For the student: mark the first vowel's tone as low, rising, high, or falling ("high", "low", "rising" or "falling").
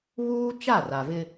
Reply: high